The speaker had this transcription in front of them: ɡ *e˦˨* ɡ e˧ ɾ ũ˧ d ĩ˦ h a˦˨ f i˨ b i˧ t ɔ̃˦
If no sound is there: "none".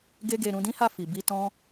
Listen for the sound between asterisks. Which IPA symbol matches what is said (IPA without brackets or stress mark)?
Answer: e˦